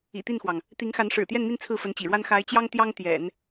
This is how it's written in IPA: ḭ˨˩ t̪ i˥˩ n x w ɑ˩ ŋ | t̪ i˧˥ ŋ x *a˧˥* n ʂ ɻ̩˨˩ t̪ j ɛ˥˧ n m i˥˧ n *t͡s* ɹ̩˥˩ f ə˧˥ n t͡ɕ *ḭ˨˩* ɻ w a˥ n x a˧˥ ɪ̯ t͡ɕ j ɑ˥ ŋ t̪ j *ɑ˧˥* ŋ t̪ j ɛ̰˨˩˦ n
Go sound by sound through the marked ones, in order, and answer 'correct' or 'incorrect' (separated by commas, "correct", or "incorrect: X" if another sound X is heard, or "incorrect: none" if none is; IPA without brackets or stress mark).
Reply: correct, incorrect: t͡sʰ, correct, incorrect: ɑ˥